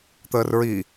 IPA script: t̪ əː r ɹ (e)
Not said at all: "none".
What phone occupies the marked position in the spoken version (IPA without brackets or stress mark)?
i